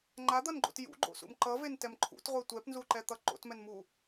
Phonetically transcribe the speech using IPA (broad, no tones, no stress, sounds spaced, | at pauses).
ŋ͡ǃ a d̪ ʌ n ɡ͡ǃ o̰ t j ṵ ɡ͡ǃ o̰ s ṵ m ǃ ʌ v e n t ɛ m ǃʰ ṵ t ʁʷ e tʷ ɛ p n z u ǃ ɛ t̪ ʌ ǃ o̰ t m ɛ n m u